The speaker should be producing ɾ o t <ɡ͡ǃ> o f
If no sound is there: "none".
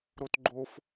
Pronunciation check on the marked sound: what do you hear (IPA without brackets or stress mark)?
ɡ͡ǃ